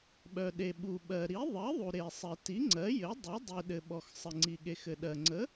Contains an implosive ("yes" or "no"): yes